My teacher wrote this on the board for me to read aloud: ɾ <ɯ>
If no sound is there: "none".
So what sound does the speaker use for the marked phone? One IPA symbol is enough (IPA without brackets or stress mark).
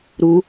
u